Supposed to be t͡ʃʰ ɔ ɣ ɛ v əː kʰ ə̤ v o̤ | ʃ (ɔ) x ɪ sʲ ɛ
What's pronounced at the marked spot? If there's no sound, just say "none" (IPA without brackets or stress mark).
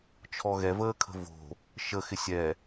ə